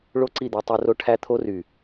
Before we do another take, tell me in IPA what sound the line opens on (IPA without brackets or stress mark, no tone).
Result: ɭ